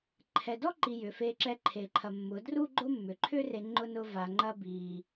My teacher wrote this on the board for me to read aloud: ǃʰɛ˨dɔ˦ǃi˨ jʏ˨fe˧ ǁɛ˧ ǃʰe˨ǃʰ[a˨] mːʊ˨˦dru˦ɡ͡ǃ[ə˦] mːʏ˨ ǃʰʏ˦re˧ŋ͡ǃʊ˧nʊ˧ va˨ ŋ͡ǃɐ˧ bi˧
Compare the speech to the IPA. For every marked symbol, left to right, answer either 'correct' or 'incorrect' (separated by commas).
incorrect, incorrect